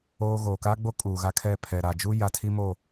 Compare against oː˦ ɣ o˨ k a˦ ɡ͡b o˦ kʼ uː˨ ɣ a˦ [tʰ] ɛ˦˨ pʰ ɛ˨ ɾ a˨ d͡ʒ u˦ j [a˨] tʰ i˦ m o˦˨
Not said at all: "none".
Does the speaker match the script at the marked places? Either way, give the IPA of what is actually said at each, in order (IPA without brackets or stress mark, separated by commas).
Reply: kʰ, a˨